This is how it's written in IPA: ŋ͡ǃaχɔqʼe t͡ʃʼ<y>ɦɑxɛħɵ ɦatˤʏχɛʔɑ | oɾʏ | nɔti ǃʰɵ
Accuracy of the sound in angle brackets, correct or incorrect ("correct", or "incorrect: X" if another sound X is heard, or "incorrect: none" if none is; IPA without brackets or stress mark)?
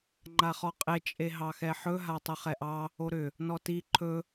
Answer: incorrect: e